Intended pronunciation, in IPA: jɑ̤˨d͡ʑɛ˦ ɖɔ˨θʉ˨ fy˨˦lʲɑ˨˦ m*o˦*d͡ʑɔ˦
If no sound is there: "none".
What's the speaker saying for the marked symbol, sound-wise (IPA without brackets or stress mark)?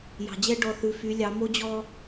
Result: o˦